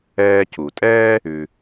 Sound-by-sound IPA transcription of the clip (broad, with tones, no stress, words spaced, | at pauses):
ɛː˧cu˩tʼɛː˥ | ʉ˩